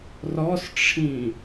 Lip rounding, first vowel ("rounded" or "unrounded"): rounded